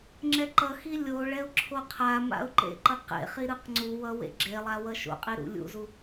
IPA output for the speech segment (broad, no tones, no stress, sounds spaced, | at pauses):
ŋ͡ǁ ɛ ǃ ʌ x i lʲ o ɭ ɛ ʊ̯ ǁʰ o qʰ a m a̰ ʊ̯ ǃ ḛ ǃ ʌ q ḛ χ i ɾ ɯ q ŋ͡ǀ u w ʌ w ḛ ɡ͡ǁ e lˠ a w ʌ ʃ o̰ qʼ i ɾ ṵ lʲ ṵ z u